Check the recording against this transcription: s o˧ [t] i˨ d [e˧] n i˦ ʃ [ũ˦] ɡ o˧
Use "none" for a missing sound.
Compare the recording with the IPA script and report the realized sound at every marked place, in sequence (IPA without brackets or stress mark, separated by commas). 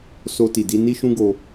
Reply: t, i˧, ũ˦